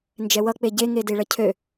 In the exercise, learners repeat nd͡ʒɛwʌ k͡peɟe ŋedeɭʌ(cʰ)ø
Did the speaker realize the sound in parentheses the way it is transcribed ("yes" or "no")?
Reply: yes